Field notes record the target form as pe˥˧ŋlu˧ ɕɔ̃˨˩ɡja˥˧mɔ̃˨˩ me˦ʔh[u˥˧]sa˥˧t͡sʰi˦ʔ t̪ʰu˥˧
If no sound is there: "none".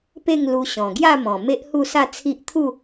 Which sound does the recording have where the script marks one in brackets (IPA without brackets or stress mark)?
u˥˧